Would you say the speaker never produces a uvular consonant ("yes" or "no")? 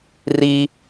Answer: yes